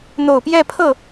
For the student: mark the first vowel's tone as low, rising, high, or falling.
low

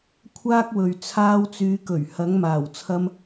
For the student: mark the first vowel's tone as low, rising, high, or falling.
high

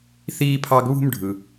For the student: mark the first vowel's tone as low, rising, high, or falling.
high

